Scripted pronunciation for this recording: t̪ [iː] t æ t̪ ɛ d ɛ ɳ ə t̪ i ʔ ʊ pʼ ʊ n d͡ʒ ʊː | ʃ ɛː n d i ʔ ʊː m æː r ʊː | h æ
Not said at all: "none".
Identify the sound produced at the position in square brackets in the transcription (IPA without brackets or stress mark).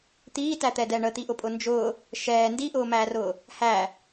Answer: iː